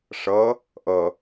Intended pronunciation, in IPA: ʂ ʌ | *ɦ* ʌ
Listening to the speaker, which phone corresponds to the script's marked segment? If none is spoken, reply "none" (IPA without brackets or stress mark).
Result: ʔ